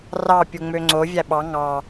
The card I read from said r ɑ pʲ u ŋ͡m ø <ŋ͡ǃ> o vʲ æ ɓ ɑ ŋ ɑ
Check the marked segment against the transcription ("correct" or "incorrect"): incorrect